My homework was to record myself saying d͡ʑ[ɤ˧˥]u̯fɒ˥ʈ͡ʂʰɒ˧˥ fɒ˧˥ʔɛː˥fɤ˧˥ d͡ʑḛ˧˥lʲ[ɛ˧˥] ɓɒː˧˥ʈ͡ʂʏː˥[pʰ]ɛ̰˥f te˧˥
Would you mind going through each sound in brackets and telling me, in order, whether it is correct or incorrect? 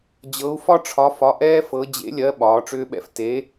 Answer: correct, incorrect, incorrect

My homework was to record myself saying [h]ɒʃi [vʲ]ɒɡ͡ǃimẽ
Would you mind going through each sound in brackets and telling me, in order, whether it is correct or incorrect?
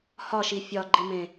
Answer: correct, incorrect

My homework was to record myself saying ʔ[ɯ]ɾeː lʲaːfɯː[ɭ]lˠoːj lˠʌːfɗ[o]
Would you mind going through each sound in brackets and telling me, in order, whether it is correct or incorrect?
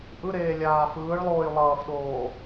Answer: correct, correct, incorrect

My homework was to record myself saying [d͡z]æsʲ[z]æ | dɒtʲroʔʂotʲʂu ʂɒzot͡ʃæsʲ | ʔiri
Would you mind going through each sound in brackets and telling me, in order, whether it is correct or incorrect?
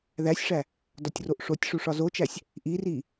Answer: incorrect, incorrect

